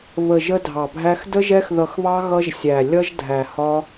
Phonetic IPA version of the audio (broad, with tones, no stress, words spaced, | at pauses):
βə˧ ʒə˦dʱɑ˧bʱæ˦x də˦ʒɛ˦xðʌ˧xβɑ˦ ɣʌ˦ʒsʲæ˧ lʲʌ˦ʒdʱæ˧hɒ˦